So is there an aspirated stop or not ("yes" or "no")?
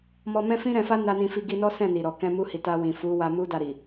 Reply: no